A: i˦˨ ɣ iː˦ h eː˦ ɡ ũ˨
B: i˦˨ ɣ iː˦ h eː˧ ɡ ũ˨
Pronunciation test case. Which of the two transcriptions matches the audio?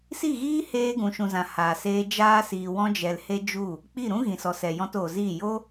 B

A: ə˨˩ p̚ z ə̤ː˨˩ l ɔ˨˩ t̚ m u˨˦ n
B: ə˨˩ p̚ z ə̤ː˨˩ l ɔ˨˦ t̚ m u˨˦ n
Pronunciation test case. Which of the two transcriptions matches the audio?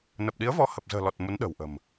A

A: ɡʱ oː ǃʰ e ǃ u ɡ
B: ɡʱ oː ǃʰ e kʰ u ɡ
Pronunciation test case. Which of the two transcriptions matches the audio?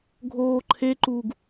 A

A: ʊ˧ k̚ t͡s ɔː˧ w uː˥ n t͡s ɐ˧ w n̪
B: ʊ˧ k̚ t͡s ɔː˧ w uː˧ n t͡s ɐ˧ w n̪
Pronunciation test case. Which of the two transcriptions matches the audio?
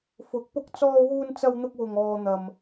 B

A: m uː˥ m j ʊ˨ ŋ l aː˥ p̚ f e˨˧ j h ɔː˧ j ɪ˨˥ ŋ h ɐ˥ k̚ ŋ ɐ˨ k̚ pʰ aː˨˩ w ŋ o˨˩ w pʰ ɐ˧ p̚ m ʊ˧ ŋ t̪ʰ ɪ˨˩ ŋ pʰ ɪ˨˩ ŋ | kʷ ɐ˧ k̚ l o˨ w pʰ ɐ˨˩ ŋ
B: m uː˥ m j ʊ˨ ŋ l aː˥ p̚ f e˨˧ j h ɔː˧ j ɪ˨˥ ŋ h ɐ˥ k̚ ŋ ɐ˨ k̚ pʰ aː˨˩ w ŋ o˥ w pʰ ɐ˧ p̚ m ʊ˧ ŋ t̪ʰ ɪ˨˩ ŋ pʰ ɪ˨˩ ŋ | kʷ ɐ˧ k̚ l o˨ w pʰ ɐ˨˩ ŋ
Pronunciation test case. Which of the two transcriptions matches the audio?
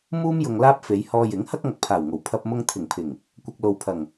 A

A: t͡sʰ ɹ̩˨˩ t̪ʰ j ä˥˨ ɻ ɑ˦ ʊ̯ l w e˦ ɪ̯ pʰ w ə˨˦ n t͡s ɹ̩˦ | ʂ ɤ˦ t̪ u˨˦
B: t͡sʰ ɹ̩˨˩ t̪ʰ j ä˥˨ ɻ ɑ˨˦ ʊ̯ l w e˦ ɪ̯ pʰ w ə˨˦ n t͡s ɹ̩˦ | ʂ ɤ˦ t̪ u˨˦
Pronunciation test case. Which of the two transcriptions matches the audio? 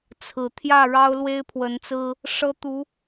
A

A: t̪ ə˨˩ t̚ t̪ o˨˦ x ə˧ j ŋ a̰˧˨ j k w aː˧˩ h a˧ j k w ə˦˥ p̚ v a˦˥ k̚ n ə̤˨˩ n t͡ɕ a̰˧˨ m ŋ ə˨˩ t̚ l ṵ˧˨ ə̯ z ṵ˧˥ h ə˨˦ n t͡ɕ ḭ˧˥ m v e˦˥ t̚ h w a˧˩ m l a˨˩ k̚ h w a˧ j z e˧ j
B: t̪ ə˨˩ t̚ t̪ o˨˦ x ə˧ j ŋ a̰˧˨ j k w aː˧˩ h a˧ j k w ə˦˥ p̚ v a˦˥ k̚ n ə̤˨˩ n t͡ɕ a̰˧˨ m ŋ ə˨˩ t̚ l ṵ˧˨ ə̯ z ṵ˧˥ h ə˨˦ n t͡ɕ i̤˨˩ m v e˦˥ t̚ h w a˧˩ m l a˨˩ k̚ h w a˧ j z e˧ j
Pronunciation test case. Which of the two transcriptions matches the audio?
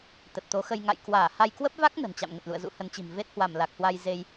B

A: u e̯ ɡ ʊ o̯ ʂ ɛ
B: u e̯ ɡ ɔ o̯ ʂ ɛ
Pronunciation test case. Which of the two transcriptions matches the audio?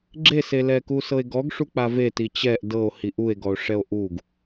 B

